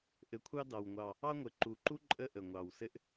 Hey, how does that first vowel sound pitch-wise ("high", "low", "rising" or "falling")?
rising